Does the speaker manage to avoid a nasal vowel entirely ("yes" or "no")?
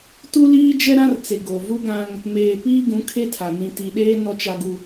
no